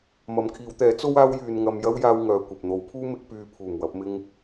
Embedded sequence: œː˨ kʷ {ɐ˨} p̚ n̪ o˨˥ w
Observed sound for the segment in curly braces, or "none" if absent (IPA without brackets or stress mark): ɐ˨